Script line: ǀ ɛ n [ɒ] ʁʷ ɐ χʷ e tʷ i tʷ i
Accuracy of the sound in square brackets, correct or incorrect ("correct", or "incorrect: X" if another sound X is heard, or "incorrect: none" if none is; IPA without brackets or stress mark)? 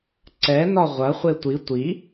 correct